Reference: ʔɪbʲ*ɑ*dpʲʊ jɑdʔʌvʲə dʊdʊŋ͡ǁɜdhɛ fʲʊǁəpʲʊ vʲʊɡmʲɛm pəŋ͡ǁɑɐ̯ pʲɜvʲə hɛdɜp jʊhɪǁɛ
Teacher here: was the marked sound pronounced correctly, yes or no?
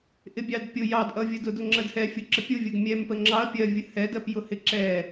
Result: yes